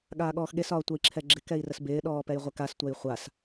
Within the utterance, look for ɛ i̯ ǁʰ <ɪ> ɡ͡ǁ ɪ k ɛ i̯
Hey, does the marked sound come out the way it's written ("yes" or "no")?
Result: no